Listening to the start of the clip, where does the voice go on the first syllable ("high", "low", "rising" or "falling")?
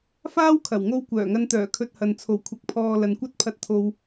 high